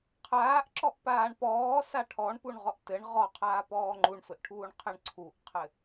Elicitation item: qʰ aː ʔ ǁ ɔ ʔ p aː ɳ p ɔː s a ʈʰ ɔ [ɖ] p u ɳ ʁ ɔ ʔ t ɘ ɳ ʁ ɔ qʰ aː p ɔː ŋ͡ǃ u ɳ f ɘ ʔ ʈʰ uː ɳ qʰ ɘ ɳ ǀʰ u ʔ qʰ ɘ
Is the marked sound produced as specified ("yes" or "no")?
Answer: no